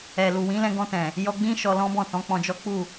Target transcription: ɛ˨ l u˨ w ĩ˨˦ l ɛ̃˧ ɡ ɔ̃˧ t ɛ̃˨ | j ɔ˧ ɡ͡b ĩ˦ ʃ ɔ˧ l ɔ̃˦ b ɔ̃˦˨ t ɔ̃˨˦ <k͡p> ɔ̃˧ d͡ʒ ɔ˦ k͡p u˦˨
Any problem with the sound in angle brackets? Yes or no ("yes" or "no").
no